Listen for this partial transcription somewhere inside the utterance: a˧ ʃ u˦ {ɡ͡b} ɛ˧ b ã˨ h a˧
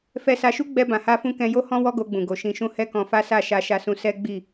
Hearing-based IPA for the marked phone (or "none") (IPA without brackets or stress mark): ɡ͡b